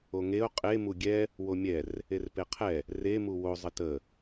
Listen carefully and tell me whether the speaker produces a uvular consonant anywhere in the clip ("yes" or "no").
yes